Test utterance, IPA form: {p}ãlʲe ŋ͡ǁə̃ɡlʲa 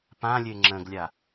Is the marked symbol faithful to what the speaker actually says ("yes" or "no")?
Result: yes